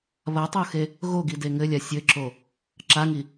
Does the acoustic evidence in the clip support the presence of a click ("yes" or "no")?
yes